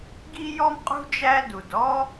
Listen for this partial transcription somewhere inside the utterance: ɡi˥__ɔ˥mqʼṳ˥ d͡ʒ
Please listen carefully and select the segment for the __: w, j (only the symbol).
j